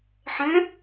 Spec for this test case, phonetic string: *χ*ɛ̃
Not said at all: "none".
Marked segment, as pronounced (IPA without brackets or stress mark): ħ